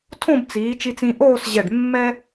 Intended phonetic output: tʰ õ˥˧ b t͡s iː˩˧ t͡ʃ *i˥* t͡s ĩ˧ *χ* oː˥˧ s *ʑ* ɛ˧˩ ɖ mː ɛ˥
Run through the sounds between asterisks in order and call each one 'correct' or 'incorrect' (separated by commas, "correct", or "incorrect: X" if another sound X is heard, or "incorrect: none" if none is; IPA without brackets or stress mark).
incorrect: i˧, incorrect: ʔ, correct